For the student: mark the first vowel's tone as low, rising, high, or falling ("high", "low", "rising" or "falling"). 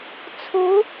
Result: rising